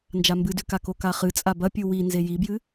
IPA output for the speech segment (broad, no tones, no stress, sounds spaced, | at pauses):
n d͡ʒ a m b ɨ d ʉ k a k o k a χ ɨ t͡sʼ a b ɐ pʲ u w i n z e j i b j ɨ